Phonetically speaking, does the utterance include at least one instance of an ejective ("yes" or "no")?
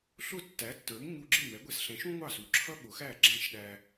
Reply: no